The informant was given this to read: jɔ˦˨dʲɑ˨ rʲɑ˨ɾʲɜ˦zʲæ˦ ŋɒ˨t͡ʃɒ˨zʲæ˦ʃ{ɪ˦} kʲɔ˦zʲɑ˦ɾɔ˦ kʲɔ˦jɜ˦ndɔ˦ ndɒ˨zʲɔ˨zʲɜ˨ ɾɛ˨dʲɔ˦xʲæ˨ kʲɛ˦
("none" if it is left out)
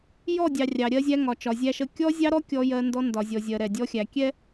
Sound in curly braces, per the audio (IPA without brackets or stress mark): ə˦